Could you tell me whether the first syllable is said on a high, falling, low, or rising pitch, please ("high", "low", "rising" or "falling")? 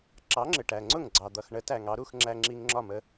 rising